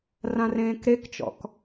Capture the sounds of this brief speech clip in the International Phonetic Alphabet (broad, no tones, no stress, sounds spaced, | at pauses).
r ã r ẽː k ɾ e k t͡ʃ ɔ̰ k